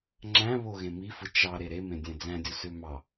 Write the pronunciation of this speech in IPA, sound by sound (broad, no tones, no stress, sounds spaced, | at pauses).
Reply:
ŋ͡ǁ æ̃ β o ɣ ẽ m i f ɯ t͡ʃ ɑ ɾ e ɾ e m ẽ dʲ æ̃ d͡z æ̃ dʲ u s ø m ɑ